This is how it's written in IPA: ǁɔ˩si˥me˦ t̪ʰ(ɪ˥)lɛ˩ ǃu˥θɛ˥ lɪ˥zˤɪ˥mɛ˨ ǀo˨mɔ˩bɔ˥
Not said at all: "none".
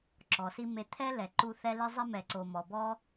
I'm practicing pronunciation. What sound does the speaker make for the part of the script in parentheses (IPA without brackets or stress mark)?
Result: ɛ˥